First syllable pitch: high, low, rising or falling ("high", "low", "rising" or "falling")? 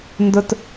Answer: high